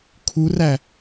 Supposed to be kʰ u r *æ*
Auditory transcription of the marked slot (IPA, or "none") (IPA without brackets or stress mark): æ